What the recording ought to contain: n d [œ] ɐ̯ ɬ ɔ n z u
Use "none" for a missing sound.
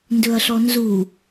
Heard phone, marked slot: ɵ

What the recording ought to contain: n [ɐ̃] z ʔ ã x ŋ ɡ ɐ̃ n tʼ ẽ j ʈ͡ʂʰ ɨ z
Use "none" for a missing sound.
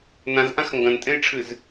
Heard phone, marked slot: ã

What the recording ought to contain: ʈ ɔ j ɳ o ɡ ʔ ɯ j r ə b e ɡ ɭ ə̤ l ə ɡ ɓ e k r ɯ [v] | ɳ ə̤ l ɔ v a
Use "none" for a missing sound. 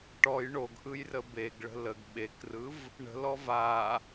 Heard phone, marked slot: v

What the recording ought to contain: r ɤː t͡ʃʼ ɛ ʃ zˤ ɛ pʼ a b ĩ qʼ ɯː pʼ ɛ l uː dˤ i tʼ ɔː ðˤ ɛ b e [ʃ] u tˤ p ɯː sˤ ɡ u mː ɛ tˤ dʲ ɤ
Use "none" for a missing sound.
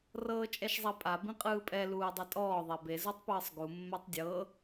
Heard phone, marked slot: z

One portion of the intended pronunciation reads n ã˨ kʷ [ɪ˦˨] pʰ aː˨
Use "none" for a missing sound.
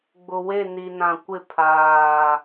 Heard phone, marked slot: ɪ˦˨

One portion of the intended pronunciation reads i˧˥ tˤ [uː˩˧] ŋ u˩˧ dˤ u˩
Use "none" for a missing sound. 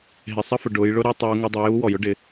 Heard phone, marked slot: uː˩˧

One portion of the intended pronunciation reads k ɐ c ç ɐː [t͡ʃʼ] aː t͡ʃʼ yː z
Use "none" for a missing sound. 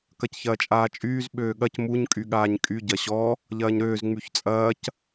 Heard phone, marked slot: t͡ʃʼ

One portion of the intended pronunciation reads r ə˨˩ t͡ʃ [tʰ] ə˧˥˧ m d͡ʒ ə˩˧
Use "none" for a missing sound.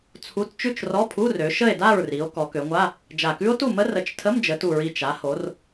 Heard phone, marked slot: tʰ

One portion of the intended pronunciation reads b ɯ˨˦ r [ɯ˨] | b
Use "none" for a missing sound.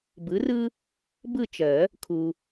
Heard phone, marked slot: ɯ˦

